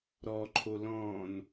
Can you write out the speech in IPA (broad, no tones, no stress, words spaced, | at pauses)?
ɾɔǃʰo lɔ̃n